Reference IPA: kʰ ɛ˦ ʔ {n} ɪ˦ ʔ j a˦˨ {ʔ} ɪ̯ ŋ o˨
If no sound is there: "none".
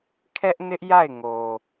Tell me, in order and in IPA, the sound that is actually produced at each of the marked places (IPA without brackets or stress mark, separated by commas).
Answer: n, none